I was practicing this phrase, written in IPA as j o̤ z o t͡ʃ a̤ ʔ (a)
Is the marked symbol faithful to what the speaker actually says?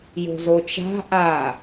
yes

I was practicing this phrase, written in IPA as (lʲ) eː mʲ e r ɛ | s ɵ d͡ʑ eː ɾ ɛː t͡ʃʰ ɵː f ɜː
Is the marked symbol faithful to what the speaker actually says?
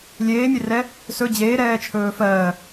yes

